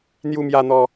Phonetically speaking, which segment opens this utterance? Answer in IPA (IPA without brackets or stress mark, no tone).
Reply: n̪